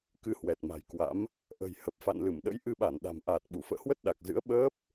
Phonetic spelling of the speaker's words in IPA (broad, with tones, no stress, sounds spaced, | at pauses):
k ɨ˧ h w ɛ˨˩ t̚ m a̤˨˩ j k w a̰˧˥ m | ʔ ə̤˨˩ j h ə˨˩ p̚ f a̰˧˨ n l ɨ˧˩ m ɗ ə̰˧˥ j ʔ ɨ˧ ɓ a˧˩ n ɗ a̤˨˩ m ʔ aː˨˩ t̚ ɓ u˧˩ f ə̰ː˧˨ h w ə˦˥ t̚ ɗ a˨˩ k̚ z ɨ̰˧˥ ə̯ ɓ əː˦˥ p̚